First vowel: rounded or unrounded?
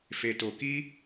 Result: unrounded